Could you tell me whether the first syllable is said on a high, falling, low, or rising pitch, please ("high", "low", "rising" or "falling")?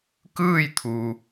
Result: falling